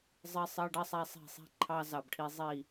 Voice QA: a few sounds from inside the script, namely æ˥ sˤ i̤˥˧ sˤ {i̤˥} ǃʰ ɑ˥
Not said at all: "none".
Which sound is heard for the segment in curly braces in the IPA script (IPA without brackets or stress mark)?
i̤˥